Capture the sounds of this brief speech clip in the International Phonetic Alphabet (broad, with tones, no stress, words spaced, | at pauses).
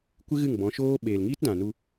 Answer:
kʷɨ˦ɣɨ˦˨ŋbɔ̃˨˦ʃoː˦ ɓeː˨lŋiː˦tdã˨nu˧